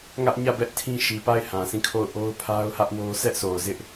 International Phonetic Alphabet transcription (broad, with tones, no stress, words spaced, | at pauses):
ŋä˦ʔ ɲä˦˨bɛ˦ʔ tʰĩ˦ʃi˨pa˦˨ɪ̯ hã˨sʰĩ˦˨kʰo˦˨ʊ̯ ʔo˦ʊ̯pʰa˦ʊ̯hä˦ʔwo˦ sɛ˦ʔso˨ʊ̯zɪ˦ʔ